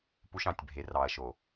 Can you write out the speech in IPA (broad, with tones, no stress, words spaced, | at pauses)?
pu˧ʃɑ̃˨tʲbʱe˨ rɑ˨ɐ̯ʃo˨